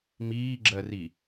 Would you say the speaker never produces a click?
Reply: no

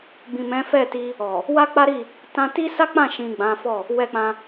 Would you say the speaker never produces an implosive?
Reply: yes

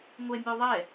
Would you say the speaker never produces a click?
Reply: yes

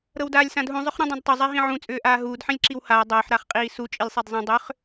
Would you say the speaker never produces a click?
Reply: no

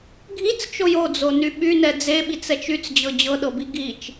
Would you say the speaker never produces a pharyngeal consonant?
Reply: yes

